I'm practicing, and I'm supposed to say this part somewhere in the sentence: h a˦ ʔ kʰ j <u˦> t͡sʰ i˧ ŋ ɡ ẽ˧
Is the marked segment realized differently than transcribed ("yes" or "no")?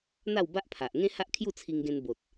yes